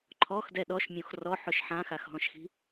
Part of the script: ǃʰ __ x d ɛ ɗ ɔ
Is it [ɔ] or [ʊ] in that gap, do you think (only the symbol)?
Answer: ɔ